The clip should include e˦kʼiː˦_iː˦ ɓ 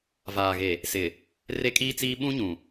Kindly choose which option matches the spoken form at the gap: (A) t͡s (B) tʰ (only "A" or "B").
A